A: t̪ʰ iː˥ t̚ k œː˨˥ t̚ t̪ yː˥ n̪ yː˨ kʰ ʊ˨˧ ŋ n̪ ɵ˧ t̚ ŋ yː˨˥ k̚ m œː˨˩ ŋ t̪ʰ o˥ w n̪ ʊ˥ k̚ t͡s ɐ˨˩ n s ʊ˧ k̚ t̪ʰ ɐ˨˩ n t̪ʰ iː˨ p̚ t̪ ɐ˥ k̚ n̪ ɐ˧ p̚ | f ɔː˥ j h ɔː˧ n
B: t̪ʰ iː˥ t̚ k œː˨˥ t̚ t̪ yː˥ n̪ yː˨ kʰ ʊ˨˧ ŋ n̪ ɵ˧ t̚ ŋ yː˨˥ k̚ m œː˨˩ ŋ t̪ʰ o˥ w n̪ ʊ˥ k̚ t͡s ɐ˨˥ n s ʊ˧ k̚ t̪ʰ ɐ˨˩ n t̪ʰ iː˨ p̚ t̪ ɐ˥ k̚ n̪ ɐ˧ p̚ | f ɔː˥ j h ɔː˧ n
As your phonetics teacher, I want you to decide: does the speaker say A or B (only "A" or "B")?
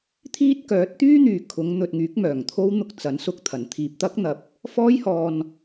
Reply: B